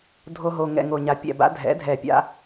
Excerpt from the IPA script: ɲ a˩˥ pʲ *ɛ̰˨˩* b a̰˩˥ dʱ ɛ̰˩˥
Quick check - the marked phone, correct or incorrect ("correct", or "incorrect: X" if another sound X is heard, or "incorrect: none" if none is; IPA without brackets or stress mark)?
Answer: correct